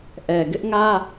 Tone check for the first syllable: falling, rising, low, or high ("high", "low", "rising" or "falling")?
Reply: low